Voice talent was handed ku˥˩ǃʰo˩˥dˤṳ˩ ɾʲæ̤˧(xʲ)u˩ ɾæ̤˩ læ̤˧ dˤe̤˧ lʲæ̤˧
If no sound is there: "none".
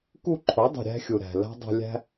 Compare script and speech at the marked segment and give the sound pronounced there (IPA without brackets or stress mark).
xʲ